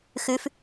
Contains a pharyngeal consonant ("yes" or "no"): no